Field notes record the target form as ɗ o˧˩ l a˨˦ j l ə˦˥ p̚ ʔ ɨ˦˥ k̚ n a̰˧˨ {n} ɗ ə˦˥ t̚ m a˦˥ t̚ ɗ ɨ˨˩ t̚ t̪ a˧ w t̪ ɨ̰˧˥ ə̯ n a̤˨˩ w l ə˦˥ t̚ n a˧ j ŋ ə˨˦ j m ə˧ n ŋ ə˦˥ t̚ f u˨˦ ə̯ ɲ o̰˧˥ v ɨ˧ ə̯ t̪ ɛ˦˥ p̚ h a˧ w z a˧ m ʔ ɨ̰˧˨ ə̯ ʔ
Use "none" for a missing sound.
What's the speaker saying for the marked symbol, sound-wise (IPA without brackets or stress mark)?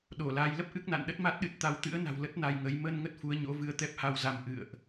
n